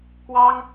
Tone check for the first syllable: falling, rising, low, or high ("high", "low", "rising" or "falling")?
high